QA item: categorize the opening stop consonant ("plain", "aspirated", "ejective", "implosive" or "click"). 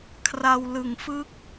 aspirated